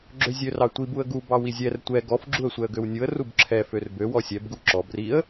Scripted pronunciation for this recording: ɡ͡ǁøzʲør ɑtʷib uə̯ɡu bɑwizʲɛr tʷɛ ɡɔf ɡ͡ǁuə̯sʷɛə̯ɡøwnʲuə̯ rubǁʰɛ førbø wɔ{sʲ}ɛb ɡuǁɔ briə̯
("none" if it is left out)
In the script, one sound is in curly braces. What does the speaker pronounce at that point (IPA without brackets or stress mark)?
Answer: sʲ